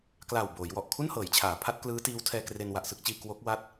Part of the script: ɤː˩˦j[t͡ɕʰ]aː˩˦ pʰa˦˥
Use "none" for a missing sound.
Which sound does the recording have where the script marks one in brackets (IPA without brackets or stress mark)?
t͡ɕʰ